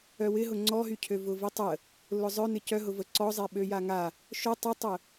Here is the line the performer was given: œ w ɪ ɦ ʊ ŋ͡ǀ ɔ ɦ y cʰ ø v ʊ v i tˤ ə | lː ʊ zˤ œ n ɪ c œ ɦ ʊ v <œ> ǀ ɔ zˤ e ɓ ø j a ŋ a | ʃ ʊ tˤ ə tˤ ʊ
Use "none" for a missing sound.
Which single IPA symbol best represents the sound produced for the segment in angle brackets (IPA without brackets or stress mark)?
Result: ə